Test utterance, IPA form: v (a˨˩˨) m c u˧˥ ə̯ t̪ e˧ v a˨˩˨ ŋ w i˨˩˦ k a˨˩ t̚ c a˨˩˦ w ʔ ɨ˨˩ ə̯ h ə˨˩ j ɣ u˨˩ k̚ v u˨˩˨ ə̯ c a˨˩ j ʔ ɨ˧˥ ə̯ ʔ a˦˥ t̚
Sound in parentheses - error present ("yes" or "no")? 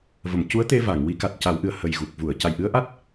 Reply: yes